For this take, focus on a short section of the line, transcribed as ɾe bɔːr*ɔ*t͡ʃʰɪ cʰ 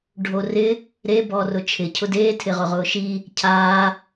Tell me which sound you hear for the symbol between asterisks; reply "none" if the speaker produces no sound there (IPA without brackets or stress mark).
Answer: ʊ